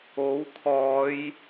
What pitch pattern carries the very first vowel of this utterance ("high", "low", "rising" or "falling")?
rising